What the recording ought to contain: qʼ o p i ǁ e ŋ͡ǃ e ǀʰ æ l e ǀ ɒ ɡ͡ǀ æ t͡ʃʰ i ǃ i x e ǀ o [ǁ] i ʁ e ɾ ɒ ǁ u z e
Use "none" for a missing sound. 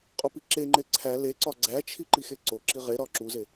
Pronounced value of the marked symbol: ǁ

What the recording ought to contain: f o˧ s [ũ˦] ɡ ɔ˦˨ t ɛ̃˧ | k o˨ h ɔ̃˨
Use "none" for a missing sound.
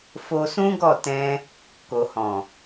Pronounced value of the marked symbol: ũ˦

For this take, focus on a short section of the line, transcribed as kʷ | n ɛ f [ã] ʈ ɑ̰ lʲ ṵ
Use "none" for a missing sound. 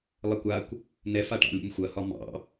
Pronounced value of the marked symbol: a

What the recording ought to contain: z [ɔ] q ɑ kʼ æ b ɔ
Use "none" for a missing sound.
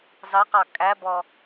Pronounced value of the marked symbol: ɑ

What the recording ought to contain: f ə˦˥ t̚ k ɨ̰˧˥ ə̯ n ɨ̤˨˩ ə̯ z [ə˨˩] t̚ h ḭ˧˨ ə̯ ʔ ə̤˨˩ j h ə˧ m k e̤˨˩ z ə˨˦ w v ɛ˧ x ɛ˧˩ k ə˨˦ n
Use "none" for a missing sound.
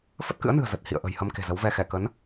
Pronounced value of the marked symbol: ə˨˩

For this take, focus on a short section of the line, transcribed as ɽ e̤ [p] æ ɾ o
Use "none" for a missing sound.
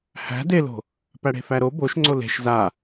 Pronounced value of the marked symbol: f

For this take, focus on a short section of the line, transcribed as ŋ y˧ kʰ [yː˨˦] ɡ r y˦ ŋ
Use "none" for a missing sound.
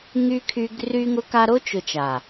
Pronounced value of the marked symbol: yː˧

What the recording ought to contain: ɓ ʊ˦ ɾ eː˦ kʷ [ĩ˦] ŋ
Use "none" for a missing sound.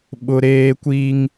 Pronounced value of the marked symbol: i˦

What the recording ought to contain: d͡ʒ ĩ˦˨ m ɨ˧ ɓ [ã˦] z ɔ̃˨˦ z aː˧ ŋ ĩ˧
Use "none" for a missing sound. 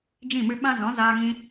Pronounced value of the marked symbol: ã˦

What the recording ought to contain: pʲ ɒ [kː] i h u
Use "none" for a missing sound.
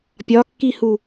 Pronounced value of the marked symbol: kː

